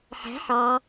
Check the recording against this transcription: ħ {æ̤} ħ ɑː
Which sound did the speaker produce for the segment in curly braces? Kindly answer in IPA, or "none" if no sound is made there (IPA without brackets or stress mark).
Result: æ̤